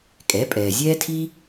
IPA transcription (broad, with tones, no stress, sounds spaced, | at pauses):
kʼ ɛ˩˥ pʼ ɛː˩ zʲ ɛː˥ tʰ iː˥